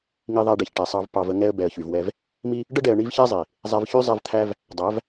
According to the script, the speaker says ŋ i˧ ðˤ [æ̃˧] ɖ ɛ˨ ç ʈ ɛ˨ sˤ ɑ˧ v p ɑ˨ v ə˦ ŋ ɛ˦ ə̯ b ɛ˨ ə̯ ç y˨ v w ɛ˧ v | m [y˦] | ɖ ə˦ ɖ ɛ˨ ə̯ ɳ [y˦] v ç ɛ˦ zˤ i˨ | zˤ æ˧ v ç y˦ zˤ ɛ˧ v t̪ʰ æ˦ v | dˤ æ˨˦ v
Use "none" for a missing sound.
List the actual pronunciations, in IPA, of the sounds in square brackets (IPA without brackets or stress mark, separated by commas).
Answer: æ˧, i˦, i˦